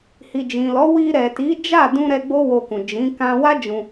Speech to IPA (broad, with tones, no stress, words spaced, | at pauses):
hi˨d͡ʒĩ˨lɔ˨˦ wi˧ɾɛ˨ti˨˦ d͡ʒa˦˨dũ˧ ɾɛ˧ ɡ͡bo˦wo˧kũ˨ d͡ʒĩ˨˦ kã˧wa˦ d͡ʒũ˧